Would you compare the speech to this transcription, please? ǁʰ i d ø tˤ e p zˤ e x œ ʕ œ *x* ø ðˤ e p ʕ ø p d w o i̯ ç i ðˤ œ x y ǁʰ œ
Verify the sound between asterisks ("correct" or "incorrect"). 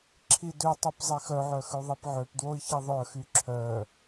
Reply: correct